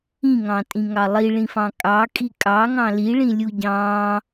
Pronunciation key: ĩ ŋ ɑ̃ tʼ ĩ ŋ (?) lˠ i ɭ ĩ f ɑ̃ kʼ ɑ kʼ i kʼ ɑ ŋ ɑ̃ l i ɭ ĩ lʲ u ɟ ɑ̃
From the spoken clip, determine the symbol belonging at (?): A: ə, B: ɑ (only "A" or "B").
B